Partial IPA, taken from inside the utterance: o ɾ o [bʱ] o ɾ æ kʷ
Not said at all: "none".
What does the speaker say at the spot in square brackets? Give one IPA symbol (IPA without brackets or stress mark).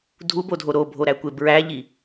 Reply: bʱ